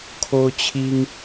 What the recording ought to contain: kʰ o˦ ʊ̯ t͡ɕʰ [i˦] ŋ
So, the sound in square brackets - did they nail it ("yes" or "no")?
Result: yes